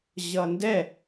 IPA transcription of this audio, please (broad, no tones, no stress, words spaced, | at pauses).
ʑʌndɛ